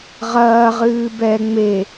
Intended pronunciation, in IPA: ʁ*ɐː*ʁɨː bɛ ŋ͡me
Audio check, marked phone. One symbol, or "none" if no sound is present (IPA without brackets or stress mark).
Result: ɐː